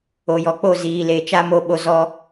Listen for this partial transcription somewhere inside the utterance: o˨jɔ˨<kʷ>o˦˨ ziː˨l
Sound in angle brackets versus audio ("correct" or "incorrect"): incorrect